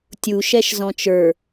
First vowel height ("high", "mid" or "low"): high